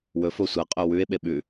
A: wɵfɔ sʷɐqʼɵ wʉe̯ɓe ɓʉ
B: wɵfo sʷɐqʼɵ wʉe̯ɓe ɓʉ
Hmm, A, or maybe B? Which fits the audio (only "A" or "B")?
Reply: B